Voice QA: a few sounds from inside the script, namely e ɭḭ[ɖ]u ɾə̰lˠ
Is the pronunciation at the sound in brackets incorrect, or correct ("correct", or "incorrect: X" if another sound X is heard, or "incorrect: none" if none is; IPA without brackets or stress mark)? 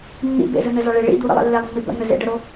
incorrect: d̪